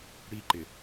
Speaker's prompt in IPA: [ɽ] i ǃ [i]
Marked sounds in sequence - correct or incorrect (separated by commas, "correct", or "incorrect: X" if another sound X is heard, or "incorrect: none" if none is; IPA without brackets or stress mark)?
correct, incorrect: ɪ